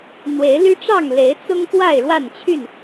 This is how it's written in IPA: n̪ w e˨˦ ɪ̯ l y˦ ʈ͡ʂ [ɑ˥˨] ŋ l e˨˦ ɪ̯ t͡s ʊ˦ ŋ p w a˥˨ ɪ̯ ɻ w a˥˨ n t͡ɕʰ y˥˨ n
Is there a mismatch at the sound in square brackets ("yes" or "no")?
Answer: no